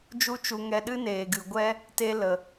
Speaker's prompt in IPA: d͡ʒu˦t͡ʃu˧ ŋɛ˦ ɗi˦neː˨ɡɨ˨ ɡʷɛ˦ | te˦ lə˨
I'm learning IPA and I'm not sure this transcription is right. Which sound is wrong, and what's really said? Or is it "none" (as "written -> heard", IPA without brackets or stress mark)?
i˦ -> ɨ˦